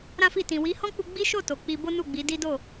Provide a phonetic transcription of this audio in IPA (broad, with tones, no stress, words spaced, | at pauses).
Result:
ɾã˦fi˦˨ tĩ˨wi˨˦hɔ̃˦k͡pu˧ ɡ͡bi˦ʃo˦˨ to˨k͡pi˧bo˦ nu˦˨ɡ͡bi˨˦di˦do˦˨